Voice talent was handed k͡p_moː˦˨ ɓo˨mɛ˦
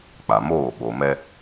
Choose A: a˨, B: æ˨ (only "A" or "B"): A